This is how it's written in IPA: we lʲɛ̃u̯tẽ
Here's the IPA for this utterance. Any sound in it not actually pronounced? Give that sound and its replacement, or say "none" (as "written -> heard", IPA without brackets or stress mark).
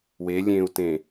ɛ̃ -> ẽ